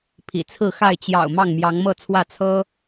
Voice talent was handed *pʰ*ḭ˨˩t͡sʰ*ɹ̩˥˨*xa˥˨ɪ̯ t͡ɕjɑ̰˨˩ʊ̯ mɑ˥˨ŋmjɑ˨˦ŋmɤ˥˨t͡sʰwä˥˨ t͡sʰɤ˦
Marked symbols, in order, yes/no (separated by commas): yes, yes